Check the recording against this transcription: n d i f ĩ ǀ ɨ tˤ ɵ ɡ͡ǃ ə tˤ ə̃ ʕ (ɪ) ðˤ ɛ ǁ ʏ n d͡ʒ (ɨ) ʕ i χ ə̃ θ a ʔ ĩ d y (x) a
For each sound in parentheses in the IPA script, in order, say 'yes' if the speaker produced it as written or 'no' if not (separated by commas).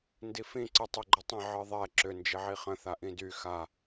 no, no, yes